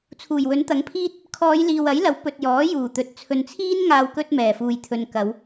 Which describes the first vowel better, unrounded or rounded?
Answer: rounded